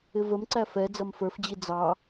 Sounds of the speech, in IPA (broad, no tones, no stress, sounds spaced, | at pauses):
ɪ v ə m ǀ æ f ɛ d͡z ʌ m f ə˞ f d͡ʑ i d͡z ɑ